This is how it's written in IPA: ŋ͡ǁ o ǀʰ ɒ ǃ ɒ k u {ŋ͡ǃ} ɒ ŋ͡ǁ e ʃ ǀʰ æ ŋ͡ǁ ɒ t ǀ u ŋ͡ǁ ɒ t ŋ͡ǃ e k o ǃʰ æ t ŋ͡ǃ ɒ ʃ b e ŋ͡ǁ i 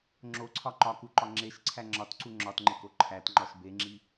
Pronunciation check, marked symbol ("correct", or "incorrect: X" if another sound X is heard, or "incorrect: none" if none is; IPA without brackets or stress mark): incorrect: ǃ